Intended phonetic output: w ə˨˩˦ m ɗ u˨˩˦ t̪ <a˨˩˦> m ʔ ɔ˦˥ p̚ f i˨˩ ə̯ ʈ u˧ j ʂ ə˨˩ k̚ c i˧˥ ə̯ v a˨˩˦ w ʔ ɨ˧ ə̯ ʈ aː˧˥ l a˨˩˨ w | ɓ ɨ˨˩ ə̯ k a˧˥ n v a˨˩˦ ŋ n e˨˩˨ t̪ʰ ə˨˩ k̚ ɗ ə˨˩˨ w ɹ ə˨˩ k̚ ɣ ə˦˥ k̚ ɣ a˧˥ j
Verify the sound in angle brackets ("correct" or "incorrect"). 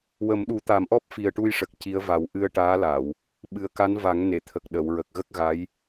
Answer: correct